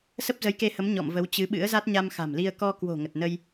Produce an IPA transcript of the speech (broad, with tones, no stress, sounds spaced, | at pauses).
s ə˦˥ p̚ z ə˨˦ j k e˧ h ə˨˦ m ɲ ɔ̰˧˨ m v ə˨˦ w t͡ɕ ɨ˨˦ ɓ ɨ̰˧˥ ə̯ z a˦˥ t̚ ɲ a˧ m x a̤˨˩ m l i˧ ə̯ k ɔ˧ k w o̤˨˩ ŋ ə˨˩ t̚ n ə˧ j